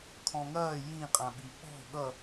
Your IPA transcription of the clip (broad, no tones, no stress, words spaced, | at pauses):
kʰɔ̃ŋɐː jĩqʼãɓi ɓɔ̤ ɠʌ